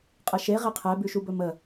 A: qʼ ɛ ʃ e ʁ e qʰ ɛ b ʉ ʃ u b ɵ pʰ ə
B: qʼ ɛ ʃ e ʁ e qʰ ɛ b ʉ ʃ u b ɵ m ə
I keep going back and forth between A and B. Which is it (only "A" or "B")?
B